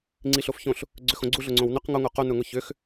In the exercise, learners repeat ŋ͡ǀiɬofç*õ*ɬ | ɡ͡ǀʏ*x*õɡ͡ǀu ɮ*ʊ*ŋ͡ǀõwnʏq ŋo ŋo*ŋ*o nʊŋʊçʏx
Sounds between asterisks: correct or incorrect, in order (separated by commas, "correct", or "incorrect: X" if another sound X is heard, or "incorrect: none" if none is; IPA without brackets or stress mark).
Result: correct, correct, correct, incorrect: q